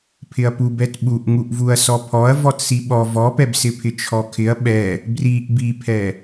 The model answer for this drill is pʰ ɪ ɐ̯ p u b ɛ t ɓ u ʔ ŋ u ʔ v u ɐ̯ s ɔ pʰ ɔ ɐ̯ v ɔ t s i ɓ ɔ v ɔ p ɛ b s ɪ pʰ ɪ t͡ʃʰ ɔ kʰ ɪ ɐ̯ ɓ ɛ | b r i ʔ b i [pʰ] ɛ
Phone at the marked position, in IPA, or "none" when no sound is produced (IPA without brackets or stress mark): pʰ